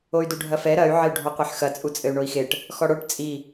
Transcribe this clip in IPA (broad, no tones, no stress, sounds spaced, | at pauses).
o y̯ d u ɖʱ ɐ f ɛ ɾ ɐ y̯ ʕ ɘ y̯ ɖʱ ɔ qʷ e ħ x ɐ t͡sʼ u t͡sʼ ɘ y̯ ɳ o i̯ x e ʈ | x ɔ ɽ o ʈ t͡sʼ i